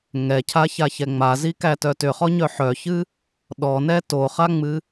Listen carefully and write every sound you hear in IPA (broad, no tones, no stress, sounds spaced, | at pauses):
ŋ ɛ cʰ a ç a ç ɛ ŋ͡m a z i k æ t œ t ʏ χ ɔ ɲ œ ħ œ ç ɨ | ɗ ɔ n ɛ t o χ a ŋ͡m ɨ